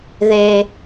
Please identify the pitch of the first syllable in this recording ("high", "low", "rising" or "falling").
low